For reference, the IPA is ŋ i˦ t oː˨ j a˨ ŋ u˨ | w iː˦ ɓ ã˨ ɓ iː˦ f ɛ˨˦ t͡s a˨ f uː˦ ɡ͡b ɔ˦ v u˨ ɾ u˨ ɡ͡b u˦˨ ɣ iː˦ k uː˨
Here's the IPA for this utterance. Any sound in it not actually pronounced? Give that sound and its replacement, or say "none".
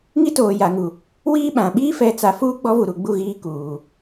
none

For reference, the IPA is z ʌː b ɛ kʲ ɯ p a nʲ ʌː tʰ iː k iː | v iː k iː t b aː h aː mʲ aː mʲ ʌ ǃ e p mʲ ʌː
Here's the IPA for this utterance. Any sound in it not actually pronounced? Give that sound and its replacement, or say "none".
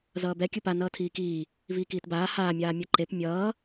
nʲ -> n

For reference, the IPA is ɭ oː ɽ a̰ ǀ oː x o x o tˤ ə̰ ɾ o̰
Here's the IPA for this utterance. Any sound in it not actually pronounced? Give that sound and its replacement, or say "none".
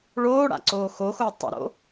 none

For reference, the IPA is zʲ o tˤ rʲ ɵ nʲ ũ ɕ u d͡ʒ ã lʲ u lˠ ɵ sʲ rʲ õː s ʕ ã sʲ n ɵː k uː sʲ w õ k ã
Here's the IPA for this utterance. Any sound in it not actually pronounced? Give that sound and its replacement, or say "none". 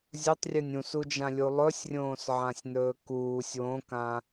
ɕ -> s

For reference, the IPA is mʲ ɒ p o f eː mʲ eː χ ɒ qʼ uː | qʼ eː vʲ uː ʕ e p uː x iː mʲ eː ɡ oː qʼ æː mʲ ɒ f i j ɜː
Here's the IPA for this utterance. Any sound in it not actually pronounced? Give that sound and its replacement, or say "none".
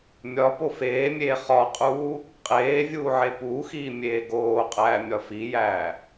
ɜː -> æː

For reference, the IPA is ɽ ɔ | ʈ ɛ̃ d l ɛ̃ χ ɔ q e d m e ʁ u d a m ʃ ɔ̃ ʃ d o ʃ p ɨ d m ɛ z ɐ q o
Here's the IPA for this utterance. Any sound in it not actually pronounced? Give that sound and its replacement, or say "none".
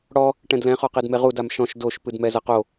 none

